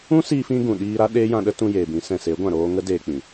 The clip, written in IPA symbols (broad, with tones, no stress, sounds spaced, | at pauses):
ũ˦ s iː˧ f ĩ˧ ɡ ũ˨ ɗ iː˧ ɾ a˦ ɗ eː˦ j ã˧ ɗ ə˦ t ũ˧ j eː˨ b ĩ˨˦ s ɛ̃˨ s e˨˦ ɡʷ ã˨ ɾ oː˧ ŋ ə˦ d eː˧ k͡p ĩ˨